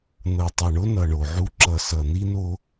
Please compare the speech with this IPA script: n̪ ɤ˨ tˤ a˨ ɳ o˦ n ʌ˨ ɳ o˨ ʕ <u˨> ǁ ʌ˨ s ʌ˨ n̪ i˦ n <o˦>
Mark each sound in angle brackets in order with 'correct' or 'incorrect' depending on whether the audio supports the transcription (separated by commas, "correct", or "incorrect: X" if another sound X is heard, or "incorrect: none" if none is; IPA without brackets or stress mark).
incorrect: u˦, correct